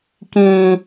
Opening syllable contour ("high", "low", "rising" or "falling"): low